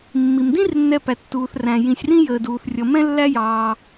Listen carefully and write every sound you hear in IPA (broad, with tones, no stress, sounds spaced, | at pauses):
mː i˧ m d ĩ˥ r nː ɛ˧ p æ˧ tː uː˧ θ r æ̃˧ j ĩ˧ sʲ r ĩ˥ j əː˧ d uː˧ θ rʲ ʌ˧ m ɛ̃˥ lː æ˥ j ɑː˧